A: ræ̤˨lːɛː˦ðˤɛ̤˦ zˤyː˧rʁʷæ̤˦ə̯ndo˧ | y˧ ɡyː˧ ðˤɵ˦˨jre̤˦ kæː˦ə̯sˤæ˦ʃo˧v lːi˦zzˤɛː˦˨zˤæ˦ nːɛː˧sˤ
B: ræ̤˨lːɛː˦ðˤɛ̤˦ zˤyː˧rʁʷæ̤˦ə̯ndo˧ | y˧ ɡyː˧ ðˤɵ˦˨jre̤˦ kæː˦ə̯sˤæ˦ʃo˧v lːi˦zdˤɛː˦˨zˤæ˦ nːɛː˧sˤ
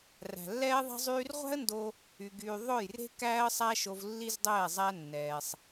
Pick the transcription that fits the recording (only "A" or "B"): B